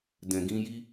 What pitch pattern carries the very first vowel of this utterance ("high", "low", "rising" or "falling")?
low